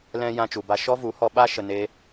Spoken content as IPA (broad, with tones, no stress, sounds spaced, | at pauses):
l ɛ̃˧ j ã˧ t͡ʃ u˨ b a˧ ʃ ɔ˦ v u˨˦ h ɔ˧ ɓ a˧ ʃ ə˨ n e˦